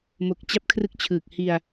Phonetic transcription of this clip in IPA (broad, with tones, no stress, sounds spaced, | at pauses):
m o˨˩ k̚ t͡ɕ a˦˥ p̚ kʰ r ɯ˦˥ k̚ t͡ɕʰ ɯː˨˩ k̚ h i˧ a̯